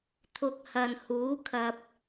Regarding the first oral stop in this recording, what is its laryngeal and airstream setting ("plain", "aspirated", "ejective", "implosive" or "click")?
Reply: aspirated